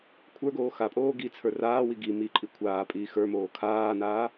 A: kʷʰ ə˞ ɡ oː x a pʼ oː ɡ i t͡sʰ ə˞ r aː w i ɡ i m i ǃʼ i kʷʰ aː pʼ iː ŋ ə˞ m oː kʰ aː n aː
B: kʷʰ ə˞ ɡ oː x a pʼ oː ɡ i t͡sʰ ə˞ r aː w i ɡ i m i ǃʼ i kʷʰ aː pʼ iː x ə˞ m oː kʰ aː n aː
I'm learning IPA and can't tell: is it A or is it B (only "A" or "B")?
B